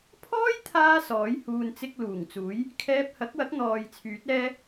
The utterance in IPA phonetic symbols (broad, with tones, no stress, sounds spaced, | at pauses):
pʰ ɔː˥ j t̪ʰ aː˥ s ɔː˨˥ j h uː˨ n t͡s ɪ˧ k̚ l uː˨˩ ŋ t͡s uː˨˥ j | kʰ ɛː˧ p̚ h ɐ˨˥ k̚ w ɐ˨˥ k̚ n̪ ɔː˨ j t͡sʰ yː˨˥ t̚ ɛː˥